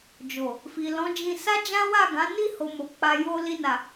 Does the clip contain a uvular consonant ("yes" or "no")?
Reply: no